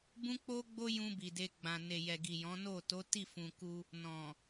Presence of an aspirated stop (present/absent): absent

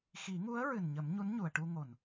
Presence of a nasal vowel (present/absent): absent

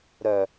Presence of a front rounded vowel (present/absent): present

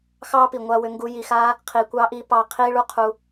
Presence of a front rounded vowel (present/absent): present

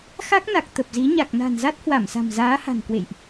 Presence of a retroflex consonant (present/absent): absent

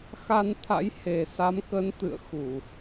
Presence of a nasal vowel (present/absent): absent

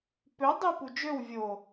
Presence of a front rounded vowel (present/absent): present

